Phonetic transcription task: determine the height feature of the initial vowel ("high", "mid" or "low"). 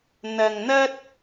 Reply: low